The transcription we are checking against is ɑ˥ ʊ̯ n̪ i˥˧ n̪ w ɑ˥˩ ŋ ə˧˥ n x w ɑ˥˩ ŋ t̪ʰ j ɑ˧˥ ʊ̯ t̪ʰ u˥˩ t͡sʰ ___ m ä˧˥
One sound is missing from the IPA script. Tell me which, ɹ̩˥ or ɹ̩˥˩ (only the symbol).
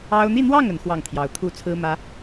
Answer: ɹ̩˥